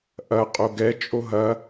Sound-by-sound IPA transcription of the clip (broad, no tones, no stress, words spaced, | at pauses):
ʔɐ qʼoɡɛt͡ʃʼo ɦɐ